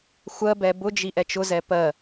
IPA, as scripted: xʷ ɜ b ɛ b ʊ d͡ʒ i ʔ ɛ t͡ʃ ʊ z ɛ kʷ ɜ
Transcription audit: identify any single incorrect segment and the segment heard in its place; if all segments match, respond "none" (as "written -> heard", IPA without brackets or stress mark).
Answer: kʷ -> p